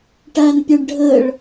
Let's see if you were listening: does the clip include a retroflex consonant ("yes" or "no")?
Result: yes